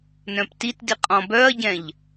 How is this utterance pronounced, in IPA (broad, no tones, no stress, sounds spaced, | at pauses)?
n œ̃ p t i t d i qʼ ɔ̃ b œ ɐ̯ ɟ ɛ̃ ʎ